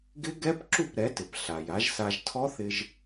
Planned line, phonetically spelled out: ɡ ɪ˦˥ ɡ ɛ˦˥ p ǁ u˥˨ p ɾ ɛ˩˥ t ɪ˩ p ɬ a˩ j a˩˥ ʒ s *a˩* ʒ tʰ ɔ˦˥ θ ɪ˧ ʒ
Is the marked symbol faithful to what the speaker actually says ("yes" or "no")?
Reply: no